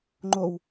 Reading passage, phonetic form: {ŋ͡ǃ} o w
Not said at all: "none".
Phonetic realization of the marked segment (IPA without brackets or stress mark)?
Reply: ŋ͡ǃ